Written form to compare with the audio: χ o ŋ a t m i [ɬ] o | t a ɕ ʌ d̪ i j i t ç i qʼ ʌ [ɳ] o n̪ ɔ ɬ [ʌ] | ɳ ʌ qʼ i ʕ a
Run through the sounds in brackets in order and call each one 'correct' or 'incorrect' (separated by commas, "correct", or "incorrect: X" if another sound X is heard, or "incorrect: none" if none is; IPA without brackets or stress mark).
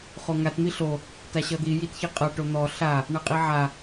correct, incorrect: ʈ, incorrect: a